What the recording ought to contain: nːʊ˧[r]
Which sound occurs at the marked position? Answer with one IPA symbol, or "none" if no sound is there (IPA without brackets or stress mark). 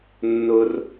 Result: r